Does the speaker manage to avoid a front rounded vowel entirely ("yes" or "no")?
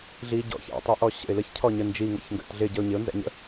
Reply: yes